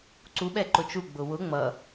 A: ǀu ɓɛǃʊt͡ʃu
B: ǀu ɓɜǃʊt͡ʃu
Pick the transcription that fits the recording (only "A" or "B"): A